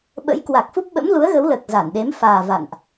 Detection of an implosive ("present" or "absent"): present